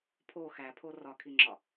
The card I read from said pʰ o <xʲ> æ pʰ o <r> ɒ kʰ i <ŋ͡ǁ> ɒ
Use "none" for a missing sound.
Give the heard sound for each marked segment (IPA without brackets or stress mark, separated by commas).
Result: x, r, ŋ͡ǁ